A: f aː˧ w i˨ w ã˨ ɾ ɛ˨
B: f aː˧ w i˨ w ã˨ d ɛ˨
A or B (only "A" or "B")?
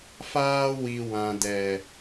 B